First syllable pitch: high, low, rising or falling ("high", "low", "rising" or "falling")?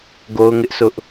high